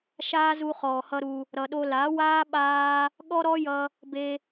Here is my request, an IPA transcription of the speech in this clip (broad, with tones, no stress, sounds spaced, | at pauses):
ʃ aː˦ z u˧ χ ɔː˨ h ʌ˦ ɾ u˧ | ɾ ʌ˨ ɗ o˧ l a˨˦ w aː˦ ɓ aː˦ | ɠ ɔ˦ ɾ ɔ˦ j ʌ˧ | b e˧